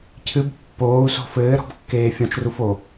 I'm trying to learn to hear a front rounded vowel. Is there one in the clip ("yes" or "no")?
no